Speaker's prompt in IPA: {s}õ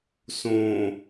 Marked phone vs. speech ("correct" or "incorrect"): correct